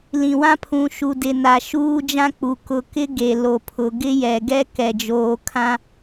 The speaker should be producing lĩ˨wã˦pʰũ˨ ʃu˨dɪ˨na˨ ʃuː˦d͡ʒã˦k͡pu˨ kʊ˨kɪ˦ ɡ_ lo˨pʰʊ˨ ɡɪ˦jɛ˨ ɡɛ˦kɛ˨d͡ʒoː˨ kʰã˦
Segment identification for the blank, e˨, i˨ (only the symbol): e˨